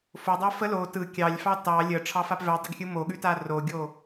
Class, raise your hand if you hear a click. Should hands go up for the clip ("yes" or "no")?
no